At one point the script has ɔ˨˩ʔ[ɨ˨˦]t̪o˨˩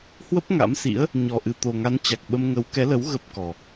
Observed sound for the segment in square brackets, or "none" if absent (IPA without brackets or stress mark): ɨ˨˩